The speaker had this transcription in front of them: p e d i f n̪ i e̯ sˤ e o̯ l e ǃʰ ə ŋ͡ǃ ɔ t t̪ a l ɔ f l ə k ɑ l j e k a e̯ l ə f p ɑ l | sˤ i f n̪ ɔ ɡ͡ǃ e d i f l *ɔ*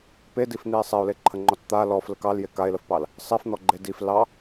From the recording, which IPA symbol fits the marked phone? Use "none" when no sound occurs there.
ɑ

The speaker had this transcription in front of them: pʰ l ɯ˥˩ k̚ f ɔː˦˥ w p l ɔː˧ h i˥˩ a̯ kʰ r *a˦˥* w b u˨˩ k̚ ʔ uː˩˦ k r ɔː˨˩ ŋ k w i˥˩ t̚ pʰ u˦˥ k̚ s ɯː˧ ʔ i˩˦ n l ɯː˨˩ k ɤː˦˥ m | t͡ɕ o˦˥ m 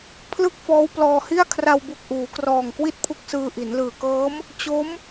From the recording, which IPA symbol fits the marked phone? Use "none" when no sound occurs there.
a˧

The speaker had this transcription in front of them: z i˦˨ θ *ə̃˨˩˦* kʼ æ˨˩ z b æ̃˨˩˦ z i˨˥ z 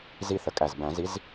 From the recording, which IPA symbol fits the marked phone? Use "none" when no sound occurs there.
ə˨˩˦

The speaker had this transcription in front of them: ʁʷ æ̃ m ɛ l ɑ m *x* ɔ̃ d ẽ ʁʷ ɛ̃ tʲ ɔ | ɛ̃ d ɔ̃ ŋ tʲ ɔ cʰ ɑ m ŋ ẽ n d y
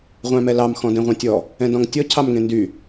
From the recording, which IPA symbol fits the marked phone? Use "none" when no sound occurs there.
x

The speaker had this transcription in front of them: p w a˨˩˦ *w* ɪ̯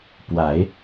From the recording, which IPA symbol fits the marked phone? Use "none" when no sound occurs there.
none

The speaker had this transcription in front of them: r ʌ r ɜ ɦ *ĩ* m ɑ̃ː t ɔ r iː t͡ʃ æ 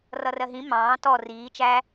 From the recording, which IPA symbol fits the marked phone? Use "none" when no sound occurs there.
ĩ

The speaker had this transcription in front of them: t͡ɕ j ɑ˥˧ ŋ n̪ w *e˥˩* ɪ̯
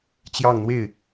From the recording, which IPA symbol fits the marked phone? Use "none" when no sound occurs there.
e˥˩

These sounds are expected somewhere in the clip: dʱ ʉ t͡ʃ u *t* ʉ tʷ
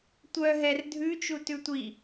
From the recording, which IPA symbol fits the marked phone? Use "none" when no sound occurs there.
t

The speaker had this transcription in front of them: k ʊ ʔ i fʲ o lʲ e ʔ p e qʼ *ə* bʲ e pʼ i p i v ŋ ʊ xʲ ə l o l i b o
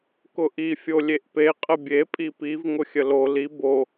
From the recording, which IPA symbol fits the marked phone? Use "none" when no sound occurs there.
ə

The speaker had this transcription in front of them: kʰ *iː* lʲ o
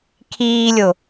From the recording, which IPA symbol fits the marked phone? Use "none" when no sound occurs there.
iː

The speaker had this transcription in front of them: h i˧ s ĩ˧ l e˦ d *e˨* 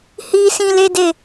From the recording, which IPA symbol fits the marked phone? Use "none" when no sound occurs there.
e˦˨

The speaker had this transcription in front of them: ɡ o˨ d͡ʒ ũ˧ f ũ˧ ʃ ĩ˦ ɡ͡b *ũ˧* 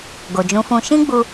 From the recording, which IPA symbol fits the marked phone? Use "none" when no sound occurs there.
u˧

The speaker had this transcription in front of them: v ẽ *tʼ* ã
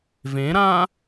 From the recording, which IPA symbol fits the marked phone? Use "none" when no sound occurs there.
ɾ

